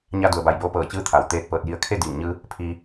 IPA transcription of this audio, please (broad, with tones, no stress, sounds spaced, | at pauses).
ɲ a˧ d u˩ ə̯ b a˧˩ j b oː˧ p ɤː˧˩ t͡ɕ ɯː˧˥ t̪ʰ a˩ w t̪ eː˧ t̚ p ɤː˧˩ t̚ j i˧ ə̯ kʰ e˥˨ d iː˧˩ ŋ ɲ ɯː˧ | pʰ iː˧